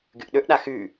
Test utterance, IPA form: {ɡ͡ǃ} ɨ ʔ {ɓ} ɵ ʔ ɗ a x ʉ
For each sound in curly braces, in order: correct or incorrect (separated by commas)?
incorrect, incorrect